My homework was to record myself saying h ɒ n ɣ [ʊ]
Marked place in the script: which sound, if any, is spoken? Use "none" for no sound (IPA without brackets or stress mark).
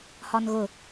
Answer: ʊ